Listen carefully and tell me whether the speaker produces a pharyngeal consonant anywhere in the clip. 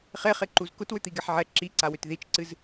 yes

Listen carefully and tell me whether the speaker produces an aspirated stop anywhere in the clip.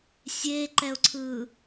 yes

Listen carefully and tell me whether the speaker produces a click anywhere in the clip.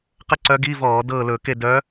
yes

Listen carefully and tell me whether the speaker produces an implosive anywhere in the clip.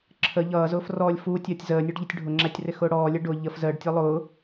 no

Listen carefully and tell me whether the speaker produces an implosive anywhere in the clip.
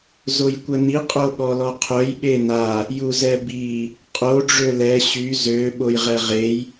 yes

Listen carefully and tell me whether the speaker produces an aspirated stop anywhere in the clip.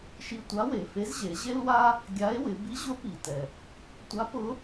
no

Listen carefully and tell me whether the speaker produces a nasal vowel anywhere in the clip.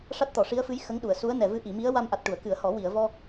no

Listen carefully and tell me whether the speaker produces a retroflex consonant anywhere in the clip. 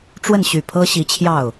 yes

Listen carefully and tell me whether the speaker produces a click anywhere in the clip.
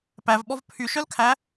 no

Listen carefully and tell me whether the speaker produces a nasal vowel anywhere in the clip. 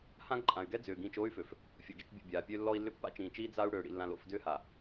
yes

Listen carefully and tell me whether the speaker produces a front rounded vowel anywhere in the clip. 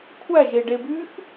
yes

